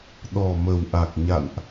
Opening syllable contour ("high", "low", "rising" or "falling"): low